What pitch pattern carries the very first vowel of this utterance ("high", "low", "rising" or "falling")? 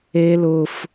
high